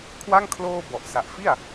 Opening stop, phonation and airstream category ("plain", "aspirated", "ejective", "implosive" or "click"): aspirated